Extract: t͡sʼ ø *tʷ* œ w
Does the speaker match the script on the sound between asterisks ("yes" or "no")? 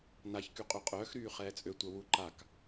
yes